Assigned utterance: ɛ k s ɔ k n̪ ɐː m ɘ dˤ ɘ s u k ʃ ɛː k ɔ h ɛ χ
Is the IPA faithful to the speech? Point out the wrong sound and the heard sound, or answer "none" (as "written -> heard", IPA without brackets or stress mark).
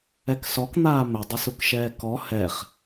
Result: ɐː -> aː